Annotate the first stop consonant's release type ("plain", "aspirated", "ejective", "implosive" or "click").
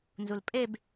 ejective